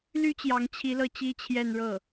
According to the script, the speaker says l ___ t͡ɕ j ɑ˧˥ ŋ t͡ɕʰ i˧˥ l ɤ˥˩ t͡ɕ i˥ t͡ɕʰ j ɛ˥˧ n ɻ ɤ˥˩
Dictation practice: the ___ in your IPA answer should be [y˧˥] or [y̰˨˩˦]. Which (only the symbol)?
y˧˥